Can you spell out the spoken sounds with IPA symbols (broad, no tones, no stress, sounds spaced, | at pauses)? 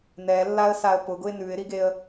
n ɛ lː a ə̯ s a ə̯ p ʊ ɡ ʊ ɪ̯ n ʉ ɪ̯ ɾ i ɡ e ə̯